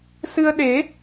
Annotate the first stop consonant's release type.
implosive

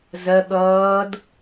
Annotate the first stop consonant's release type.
implosive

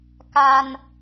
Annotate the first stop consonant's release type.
plain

